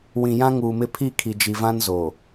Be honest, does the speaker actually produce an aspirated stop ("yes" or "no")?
yes